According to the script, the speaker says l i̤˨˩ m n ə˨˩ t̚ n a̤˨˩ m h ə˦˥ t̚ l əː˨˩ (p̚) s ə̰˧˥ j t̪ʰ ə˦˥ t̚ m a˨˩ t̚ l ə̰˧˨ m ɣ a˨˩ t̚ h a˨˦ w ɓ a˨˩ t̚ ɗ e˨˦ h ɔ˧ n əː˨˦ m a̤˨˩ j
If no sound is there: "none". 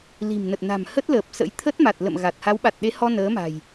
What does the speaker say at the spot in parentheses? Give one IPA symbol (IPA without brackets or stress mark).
p̚